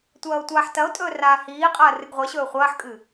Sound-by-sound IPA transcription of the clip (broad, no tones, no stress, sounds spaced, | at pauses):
tʷ ɐː o̯ tʷ aː ħ t ɐ o̯ tʼ ɵː r aː h iː qʼ ɐː r ɨ ɡ ʁʷ e ɕ ɵː χʷ ɐː ħ kʼ ɨ